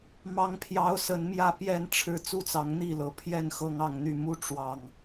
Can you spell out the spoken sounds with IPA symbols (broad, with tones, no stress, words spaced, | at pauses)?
mɑ˦ŋpʰjɑ˦ʊ̯ sə˨˦nmjä˥˨pjɛ˥˨nʈ͡ʂʰɻ̩˥˨ t͡su˥˨t͡sɑ˨˦ŋn̪i˥˨lɤ˨˦ pʰjɛ˥˨n xɤ˦ŋɑ˥˨ŋn̪y˥˨ mu˦ ʈ͡ʂwɑ˨˩ŋ